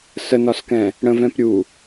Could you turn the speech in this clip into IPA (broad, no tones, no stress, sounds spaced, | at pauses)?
s ə n ɒ s k ɛ̃ | ɽ ə̃ v ɛ̃ p ɾʲ u